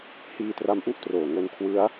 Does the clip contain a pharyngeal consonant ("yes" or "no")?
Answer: no